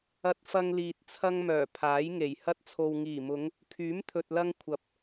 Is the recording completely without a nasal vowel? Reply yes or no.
yes